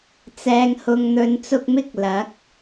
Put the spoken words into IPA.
t͡sɛː˨ŋhʊ˨ŋn̪ɵ˨˧n t͡sʊ˧k̚mɪ˥k̚ lɐ˨˥k̚

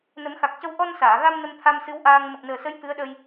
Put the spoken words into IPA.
nə˨˩˦mxa˨˩k̚cə˧w ʔɔ˧nsaː˨˩˨ɣa˧m nə˧mt̪ʰa˧msɨ˧˥w ʔaː˧ŋ mə˨˩k̚nəː˨˩sə˧˥j t̪ɨ˧˥ə̯ɗəː˧j

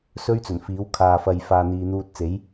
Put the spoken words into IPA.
sɵ˥ɥt͡sɵ˨˩nfiː˨˥w kʰaː˨fɐ˨j faː˨n̪iː˨ n̪uː˧t̚t͡se˨˥j

